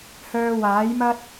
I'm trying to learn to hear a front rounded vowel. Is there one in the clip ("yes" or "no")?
yes